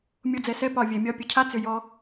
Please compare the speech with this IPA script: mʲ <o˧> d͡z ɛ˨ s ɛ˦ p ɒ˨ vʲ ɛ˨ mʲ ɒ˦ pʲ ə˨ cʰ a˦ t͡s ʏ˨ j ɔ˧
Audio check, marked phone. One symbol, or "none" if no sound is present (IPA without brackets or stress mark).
o˧